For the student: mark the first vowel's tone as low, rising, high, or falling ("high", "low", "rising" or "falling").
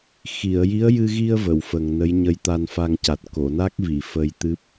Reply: low